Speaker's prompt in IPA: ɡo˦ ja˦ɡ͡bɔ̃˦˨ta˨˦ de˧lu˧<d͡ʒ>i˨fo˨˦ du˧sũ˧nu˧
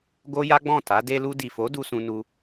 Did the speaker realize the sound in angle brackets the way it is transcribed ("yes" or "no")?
no